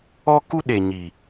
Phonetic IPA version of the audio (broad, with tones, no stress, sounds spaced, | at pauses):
ɔ˦ k u˦ ɗ e˨ ɲ i˨